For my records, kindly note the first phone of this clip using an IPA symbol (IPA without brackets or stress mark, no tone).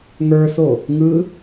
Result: ŋ